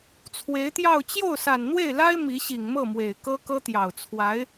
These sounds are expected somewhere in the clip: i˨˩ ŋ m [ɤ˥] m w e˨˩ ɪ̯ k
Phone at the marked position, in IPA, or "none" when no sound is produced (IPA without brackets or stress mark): ɤ˥˩